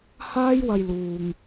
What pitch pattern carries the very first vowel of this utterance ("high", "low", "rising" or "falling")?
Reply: high